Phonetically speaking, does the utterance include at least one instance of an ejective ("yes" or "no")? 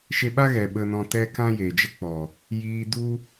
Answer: no